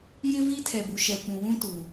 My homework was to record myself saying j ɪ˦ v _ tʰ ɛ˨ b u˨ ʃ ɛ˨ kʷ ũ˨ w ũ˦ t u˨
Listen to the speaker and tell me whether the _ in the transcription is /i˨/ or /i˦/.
i˦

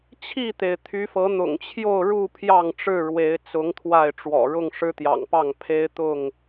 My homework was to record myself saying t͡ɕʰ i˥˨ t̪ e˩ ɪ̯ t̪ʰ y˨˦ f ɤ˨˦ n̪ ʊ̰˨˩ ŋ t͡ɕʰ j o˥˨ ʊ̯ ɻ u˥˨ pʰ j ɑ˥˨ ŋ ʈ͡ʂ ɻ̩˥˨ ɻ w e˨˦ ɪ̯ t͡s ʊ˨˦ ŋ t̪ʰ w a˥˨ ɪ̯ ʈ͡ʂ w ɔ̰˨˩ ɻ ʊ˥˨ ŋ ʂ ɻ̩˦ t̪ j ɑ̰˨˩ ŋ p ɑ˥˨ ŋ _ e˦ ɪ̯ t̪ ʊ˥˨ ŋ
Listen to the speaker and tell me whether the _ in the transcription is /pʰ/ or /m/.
pʰ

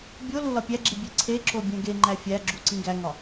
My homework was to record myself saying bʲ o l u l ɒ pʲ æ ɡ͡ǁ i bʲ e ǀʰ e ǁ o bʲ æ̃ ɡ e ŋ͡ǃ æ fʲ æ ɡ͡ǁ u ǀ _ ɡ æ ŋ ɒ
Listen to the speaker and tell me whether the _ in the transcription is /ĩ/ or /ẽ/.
ĩ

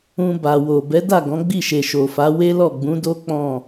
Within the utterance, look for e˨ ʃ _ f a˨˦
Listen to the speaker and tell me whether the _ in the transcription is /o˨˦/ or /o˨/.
o˨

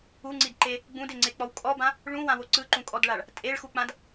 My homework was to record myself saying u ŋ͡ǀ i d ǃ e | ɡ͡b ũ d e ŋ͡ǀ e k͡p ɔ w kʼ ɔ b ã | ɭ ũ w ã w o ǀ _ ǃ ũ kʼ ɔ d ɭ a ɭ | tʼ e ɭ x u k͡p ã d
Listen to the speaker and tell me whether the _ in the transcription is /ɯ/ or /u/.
ɯ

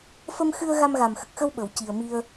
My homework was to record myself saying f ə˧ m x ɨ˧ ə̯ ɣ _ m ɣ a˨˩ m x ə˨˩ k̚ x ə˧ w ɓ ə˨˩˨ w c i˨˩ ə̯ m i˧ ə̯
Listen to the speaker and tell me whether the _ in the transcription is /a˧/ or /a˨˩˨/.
a˧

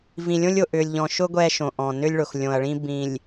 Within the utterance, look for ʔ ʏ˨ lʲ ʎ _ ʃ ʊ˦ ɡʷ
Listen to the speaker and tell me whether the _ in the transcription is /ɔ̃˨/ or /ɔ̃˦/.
ɔ̃˨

